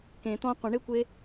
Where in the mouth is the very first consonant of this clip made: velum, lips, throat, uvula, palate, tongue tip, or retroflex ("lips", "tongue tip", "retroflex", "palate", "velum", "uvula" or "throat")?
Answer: velum